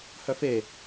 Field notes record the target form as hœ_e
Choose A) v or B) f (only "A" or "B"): B